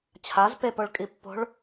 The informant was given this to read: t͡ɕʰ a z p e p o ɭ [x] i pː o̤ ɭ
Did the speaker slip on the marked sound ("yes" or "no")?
yes